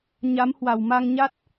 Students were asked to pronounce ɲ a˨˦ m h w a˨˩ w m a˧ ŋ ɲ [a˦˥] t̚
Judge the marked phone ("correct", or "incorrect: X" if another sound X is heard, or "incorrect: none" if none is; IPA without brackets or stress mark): correct